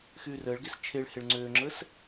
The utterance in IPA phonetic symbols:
x yː r əː ɭ ɡ e s t͡ʃʰ e ɭ h e ɭ ŋ͡ǀ øː ŋ͡ǁ əː s

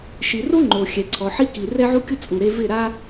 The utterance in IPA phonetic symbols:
ʃ i˨ r o˦ ŋ͡ǃ o˨ xʲ ɛ˨ ǀʰ ɔ˨ ħ i˧ k i˨ r ɛ˦ ʕ u˦ kʲ ʊ˦ t͡sʼ u˨ ɾ e˧ v ɪ˦˨ ɾ a˦

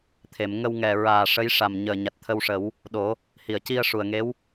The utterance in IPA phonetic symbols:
t̪ʰ e˨˩˨ m ŋ ə˧ w ŋ ɛ˨˩ ɹ aː˨˩ ʂ ə˧˥ j ʂ a˨˩ m ɲ əː˨˩ ɲ a˨˩ t̚ t̪ʰ ə˧ w ʂ ə˨˩˦ w | ɗ o˨˩˦ | h i˨˩˨ ə̯ c i˧ ə̯ ʂ u˨˩ ə̯ ŋ e˧˥ w

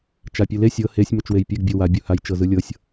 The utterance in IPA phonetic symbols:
t͡ʃ a pʲ ɯ l e sʲ ɤ h e sʲ m o t͡ʃ w e j pʲ e ɡ bʲ o w a bʲ u h a j t͡ʃ ɤ z ɯ lʲ ɤ sʲ

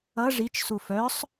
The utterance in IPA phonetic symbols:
ʌ ʐ i t͡ʃ s u f œ sˤ

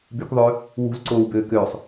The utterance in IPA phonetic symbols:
b y k ðˤ øː | w ṳ z ǀ oː w b øː k øː sˤ

